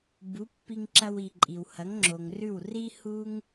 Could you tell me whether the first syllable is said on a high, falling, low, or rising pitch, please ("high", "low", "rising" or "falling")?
rising